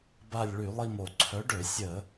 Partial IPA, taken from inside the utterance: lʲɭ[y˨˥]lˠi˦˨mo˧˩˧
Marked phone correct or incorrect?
incorrect